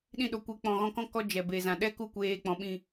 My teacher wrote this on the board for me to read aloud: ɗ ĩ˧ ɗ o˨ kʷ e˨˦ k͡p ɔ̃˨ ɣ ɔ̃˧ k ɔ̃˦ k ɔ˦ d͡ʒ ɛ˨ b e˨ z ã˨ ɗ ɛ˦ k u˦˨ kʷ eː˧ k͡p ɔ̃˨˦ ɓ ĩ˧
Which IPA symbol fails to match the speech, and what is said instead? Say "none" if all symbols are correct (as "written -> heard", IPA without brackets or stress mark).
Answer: none